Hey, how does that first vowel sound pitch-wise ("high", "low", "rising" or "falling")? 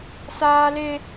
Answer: high